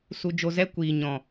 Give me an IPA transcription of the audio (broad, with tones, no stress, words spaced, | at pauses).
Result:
su˧d͡ʒo˧zɛ˦ kʷiː˨ɲɔ̃˨